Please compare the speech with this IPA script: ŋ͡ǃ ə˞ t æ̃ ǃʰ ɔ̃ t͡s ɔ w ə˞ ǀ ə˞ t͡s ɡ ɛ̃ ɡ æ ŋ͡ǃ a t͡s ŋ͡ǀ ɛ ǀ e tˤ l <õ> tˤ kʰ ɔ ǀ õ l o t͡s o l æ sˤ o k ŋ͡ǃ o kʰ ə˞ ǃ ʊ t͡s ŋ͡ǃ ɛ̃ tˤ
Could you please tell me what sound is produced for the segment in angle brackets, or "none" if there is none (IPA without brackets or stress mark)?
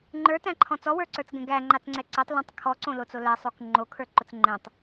ũ